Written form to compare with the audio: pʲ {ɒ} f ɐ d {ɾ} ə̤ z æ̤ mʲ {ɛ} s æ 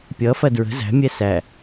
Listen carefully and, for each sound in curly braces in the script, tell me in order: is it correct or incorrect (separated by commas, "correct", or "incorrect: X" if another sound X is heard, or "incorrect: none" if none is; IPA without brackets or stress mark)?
incorrect: ʌ, incorrect: ɹ, correct